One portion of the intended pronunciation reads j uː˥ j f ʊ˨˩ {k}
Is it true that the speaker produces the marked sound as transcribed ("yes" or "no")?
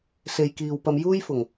no